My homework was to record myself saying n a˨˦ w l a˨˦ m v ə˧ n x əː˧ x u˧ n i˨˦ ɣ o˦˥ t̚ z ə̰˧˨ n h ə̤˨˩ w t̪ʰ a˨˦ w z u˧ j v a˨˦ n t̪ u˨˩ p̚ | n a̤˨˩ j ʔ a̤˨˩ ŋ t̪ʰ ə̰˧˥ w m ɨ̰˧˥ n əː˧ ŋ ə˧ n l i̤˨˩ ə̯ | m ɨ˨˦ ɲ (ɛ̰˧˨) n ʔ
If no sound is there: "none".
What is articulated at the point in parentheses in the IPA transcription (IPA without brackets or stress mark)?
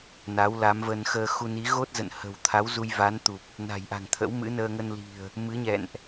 ɛ̰˧˨